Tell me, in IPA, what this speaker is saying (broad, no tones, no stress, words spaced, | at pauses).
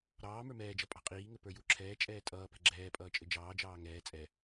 ɾɑː mə˞mɛːd͡ʒʌ pʼɑ̤qʼiːŋɘ pə˞juǁʰɛːt͡ʃʼɛː tʼʌːpɛ̤ ɡ͡ǁɛː pʼʌːt͡ʃʼɘd͡ʒɑːd͡ʒɑː ŋɛː t͡sʼɛ